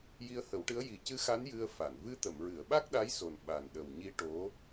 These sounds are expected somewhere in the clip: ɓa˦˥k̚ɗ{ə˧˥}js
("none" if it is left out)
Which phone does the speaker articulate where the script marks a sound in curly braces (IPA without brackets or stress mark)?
a˧˥